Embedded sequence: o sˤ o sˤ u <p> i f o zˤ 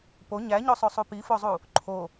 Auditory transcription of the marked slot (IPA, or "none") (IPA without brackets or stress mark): p